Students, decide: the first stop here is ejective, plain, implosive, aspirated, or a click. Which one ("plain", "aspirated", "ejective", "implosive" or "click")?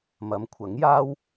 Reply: aspirated